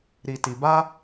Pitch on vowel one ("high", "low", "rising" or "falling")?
low